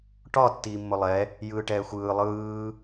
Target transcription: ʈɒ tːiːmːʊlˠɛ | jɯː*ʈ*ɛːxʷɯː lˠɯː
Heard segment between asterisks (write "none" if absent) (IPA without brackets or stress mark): ʈ